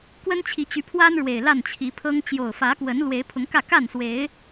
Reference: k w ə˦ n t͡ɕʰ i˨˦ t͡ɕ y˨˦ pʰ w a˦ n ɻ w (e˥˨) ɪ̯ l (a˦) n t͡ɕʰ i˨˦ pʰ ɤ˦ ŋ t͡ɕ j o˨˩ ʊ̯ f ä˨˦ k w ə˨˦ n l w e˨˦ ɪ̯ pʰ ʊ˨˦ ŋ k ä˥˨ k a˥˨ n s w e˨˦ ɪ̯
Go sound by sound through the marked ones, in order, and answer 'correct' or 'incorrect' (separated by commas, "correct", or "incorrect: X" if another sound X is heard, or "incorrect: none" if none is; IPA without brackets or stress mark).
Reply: incorrect: e˨˩, incorrect: a˥˨